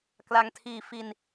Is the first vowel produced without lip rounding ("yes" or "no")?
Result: yes